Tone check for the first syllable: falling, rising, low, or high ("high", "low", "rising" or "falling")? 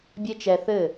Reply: high